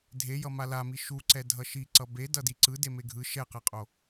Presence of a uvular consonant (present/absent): present